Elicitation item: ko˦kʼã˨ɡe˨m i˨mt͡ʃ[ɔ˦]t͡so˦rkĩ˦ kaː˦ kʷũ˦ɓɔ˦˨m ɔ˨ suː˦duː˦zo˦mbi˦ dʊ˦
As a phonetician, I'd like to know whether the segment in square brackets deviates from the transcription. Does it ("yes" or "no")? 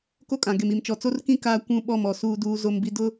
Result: yes